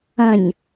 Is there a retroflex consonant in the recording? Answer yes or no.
no